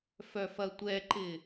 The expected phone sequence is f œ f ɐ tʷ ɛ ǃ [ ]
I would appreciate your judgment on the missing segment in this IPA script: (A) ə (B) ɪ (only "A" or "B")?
B